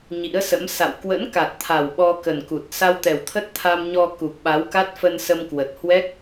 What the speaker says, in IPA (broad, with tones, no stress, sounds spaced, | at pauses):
ɲ ḭ˧˥ ə̯ s ə̰˧˥ m s a̰˧˨ w k w ə̰˧˥ n k a˨˩ t̚ t̪ʰ a˨˩ w ɓ ɔ˧ k ə˨˩ n k u˨˩ t̚ s a˧ w t̪ ɛ˨˩ w t̪ʰ ə˦˥ t̚ t̪ʰ a˧ m ɲ ɔ˧ k u˨˩ k̚ ɓ a˨˦ w k a˦˥ t̚ f ə˧ n s ə˧ m k w ə˨˩ t̚ h w ɛ˦˥ k̚